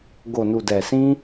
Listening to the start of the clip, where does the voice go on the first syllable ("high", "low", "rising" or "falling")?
low